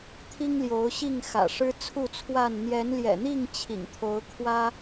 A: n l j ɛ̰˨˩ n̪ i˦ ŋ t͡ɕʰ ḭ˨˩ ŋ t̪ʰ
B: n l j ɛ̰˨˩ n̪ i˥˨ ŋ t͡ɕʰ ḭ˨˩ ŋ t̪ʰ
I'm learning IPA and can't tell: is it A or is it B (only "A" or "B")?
B